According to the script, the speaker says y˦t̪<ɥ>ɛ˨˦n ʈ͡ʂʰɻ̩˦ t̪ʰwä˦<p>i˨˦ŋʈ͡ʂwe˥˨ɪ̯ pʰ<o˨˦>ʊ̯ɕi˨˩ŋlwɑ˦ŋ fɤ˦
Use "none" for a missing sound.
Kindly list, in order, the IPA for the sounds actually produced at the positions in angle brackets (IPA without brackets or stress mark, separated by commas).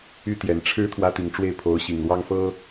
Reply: j, t̪, o˨˦